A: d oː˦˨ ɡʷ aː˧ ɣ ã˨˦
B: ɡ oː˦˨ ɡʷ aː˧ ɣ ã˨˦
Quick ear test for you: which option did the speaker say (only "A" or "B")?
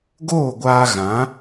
B